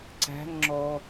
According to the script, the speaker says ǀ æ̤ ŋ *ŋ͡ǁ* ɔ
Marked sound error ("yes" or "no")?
no